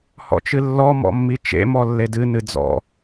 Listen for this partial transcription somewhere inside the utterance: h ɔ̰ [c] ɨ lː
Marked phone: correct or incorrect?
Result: incorrect: t͡ʃ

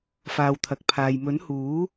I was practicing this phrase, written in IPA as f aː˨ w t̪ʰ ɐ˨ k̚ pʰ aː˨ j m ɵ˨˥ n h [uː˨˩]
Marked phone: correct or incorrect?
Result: incorrect: uː˨˥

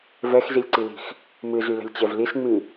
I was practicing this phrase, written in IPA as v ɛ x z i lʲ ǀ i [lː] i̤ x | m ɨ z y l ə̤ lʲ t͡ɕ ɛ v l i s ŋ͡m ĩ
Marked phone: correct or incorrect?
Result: incorrect: l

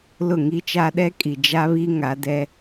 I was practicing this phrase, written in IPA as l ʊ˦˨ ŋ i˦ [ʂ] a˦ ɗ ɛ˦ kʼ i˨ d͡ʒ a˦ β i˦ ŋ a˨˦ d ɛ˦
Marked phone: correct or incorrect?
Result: incorrect: t͡ʃ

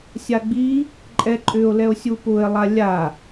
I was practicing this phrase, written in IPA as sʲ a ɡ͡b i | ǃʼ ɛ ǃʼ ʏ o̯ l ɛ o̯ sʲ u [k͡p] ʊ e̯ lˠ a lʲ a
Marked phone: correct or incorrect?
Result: incorrect: p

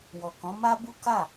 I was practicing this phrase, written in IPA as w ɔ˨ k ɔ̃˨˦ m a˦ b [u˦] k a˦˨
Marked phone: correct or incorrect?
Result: correct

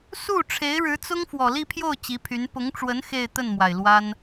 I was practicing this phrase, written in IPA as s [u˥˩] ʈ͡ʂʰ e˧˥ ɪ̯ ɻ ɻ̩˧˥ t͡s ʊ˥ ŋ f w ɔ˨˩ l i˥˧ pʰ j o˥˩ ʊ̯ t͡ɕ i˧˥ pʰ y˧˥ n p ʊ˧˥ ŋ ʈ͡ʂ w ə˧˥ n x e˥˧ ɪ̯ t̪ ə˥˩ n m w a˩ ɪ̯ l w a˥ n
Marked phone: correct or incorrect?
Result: correct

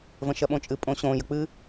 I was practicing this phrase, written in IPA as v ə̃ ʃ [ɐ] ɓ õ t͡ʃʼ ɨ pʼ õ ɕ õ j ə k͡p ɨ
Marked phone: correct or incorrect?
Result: correct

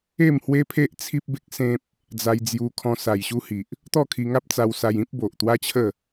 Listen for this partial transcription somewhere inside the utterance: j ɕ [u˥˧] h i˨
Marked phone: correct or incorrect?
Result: incorrect: u˦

